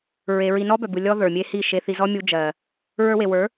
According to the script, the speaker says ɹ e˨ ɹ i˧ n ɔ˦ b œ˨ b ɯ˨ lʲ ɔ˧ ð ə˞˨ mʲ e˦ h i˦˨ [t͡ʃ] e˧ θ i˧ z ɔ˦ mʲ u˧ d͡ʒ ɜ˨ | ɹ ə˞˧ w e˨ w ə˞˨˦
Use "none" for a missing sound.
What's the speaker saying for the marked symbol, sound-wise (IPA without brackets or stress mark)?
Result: ʃ